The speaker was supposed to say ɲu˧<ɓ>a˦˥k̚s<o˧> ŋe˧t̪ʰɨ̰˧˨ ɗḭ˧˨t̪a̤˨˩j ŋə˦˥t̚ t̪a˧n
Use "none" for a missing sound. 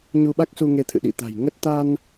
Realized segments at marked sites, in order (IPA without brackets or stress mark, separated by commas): ɓ, u˧